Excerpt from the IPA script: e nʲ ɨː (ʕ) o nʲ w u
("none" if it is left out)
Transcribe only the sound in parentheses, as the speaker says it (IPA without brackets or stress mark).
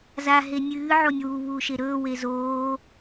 ʕ